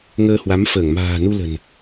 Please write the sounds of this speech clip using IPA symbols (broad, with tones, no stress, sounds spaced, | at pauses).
ŋ əː˧ h w a˨˦ m f əː˧˩ ŋ m a̤ː˨˩ n u˧ l ə̤˨˩ n